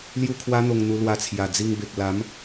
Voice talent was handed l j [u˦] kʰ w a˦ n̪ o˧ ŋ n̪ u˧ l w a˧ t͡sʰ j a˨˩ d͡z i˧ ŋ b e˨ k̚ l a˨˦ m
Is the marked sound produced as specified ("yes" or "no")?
no